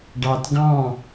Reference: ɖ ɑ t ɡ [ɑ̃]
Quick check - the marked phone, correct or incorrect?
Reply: correct